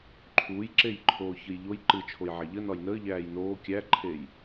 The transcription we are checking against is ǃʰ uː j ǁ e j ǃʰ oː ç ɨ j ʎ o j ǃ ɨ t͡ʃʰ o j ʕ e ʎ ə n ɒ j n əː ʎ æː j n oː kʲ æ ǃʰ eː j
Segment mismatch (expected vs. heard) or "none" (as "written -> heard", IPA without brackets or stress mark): none